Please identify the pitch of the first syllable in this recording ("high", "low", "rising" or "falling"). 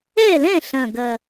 falling